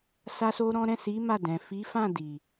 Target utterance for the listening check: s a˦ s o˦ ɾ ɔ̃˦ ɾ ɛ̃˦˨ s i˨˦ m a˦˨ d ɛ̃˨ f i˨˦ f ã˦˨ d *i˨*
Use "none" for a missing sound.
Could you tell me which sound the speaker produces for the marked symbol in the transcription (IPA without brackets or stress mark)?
i˨